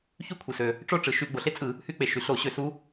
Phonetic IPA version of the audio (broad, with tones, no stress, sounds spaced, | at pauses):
ç y˥ kʷʰ ɯ˩ s ø˩ | ʈ͡ʂ o˥ ʈ͡ʂ ɯ˩ ʃ y˧˩˧ ɡ͡b o˩ ɬ e˥ t͡sʼ ɯ˧˩˧ | h y˧˥ k͡p e˩ ʃ y˩ ɬ o˧˩˧ ɕ ø˧˩˧ s u˧˥